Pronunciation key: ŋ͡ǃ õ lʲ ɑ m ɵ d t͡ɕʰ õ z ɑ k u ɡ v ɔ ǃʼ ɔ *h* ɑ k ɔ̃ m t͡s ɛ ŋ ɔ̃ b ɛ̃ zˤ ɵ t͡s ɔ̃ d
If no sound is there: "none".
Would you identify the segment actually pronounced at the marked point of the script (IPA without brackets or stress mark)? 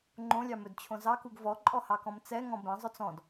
h